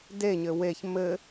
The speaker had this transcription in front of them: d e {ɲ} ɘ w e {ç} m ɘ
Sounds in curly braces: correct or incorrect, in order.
correct, correct

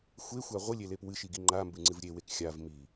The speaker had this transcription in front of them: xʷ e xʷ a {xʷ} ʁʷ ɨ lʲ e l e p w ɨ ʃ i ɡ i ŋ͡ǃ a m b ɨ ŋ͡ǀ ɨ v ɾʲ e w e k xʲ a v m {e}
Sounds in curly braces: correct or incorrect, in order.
incorrect, incorrect

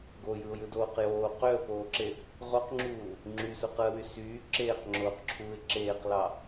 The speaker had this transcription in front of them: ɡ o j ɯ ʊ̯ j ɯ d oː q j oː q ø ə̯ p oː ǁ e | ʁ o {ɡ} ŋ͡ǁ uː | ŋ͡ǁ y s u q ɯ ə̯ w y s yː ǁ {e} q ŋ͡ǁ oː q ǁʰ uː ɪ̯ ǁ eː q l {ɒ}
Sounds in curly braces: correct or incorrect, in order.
incorrect, incorrect, incorrect

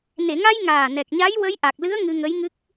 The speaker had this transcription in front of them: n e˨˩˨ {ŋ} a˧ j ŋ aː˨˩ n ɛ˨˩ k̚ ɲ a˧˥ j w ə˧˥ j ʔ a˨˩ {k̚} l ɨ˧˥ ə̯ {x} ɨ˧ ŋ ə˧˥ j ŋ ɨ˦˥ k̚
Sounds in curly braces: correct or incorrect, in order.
correct, correct, incorrect

